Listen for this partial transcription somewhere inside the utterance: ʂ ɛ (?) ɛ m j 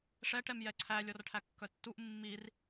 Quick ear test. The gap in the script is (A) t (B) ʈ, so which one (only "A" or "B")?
B